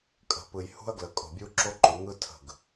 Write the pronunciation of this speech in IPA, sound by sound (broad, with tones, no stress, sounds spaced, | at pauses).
kʼ ə̤˨ p ɯ˨ j h ṳ˦ ɐ̯ ɡ l ə˨ kʼ o̤˨ bʲ u˦ ǁ o˦ ǃ o˨˦ ŋ ɯ˦ tʰ ə̤˦˨ ɡ